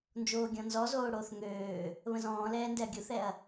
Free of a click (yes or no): yes